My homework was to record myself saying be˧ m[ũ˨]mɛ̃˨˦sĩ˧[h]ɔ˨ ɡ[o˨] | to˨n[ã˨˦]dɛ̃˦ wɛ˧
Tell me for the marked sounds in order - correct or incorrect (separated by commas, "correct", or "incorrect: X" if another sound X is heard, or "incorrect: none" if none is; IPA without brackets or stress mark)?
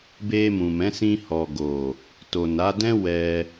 correct, correct, correct, incorrect: a˨˦